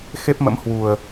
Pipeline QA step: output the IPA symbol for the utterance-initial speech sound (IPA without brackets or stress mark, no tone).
x